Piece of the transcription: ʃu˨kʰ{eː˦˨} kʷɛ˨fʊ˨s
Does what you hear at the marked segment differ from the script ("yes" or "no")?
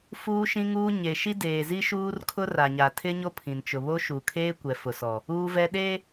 yes